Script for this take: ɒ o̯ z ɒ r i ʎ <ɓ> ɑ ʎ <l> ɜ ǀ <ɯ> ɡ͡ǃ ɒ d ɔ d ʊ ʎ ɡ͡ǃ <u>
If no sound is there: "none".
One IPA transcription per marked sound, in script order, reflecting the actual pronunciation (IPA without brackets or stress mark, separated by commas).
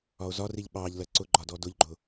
ɓ, l, ʊ, ʊ